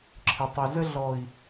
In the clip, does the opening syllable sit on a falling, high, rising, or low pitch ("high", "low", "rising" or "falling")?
low